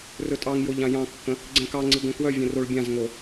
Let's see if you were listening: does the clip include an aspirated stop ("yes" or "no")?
no